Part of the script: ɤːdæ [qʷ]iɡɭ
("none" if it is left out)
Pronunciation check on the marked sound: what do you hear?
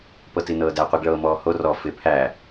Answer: qʷ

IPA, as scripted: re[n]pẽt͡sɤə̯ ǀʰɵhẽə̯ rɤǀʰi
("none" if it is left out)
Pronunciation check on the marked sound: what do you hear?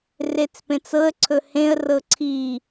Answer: t͡s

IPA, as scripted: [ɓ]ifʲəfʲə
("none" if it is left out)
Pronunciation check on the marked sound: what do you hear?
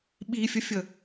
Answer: ɓ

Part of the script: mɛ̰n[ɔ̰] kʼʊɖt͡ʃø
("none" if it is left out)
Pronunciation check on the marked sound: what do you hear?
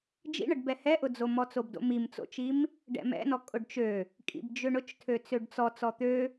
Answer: ɔ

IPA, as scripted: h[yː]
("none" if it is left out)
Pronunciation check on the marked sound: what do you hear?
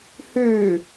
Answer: yː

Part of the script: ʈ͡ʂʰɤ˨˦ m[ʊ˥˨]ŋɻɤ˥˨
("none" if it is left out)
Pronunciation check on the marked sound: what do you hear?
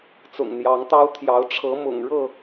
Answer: ʊ̰˨˩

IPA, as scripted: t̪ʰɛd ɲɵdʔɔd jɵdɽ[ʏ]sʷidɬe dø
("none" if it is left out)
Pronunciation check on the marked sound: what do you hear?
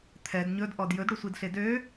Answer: ʏ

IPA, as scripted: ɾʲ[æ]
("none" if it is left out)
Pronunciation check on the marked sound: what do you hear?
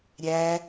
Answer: æ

